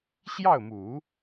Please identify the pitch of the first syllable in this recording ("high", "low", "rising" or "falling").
falling